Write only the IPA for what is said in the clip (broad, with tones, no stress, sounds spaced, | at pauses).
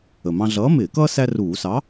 ə˨˩ m ɑ̃˦ ɮ ʌː˨˥ m ɪː˧˩˧ k ʌː˦ s æ˦ r uː˧˩˧ s ɑ˨˥